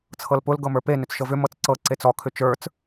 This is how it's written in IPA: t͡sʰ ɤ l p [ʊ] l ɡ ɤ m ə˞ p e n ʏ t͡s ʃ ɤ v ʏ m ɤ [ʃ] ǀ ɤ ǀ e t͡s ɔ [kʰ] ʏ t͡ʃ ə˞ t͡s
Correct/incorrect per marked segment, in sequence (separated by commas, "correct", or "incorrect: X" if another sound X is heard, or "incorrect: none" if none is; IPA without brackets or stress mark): correct, incorrect: t͡s, correct